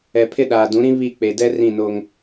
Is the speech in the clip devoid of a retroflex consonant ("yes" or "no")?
yes